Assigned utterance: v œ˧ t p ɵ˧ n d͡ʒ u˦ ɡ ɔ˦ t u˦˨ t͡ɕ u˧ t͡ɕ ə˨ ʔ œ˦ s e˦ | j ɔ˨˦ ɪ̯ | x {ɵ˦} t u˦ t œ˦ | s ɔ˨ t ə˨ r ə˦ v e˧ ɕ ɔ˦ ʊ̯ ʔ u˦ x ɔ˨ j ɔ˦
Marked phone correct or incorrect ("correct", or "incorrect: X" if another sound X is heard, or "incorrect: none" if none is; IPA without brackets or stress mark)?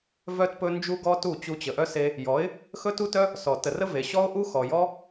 correct